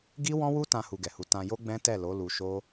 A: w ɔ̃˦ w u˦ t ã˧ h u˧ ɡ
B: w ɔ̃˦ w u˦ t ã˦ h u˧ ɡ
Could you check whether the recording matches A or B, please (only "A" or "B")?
A